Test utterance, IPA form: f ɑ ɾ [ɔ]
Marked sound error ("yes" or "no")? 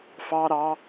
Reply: yes